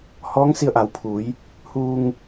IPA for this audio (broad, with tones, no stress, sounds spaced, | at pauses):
h ɔː˧˥ ŋ s i˧ ə̯ ʔ a˩˧ w pʰ uː˩˧ j | h uː˧ ŋ